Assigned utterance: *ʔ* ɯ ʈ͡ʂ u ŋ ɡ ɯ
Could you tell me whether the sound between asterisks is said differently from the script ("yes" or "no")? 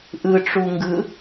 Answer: no